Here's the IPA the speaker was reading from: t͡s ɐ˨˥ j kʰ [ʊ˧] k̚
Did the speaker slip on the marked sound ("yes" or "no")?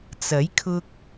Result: no